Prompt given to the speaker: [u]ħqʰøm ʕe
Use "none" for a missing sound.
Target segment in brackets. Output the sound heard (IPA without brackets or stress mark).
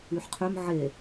y